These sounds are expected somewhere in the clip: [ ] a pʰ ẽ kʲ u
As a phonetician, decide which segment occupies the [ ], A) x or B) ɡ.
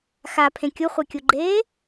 A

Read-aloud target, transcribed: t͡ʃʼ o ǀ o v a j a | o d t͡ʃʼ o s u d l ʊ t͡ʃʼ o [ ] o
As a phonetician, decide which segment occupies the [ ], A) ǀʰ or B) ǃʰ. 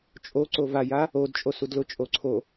A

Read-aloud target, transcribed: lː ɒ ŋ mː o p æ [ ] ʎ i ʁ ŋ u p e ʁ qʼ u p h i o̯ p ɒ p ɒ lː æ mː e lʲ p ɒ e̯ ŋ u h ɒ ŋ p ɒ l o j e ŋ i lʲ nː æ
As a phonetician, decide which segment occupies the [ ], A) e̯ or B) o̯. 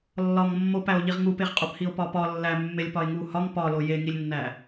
B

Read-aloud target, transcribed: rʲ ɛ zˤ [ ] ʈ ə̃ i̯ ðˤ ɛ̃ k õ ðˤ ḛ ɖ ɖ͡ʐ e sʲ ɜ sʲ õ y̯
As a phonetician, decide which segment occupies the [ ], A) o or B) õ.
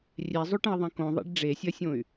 A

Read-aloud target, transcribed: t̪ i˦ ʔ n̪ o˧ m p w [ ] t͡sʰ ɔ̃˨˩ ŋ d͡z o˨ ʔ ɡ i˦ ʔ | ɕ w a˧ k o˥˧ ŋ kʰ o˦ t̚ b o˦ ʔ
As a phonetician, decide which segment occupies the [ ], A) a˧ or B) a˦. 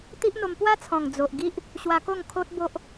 B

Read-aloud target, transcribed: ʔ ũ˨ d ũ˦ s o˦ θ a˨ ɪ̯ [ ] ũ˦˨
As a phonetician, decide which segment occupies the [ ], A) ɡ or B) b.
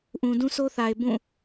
B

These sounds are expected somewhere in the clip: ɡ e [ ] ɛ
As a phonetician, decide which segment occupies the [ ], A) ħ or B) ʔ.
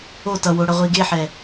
A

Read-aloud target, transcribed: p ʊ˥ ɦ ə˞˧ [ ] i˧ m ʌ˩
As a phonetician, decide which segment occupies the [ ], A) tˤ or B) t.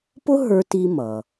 B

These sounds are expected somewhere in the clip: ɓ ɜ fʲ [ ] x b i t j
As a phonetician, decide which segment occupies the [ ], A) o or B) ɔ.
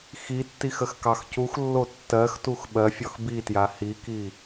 B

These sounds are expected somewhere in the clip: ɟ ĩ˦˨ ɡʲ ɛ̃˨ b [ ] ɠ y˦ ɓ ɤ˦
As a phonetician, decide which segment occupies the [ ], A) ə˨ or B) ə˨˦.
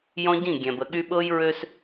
A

